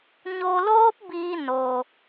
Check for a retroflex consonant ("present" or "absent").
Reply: absent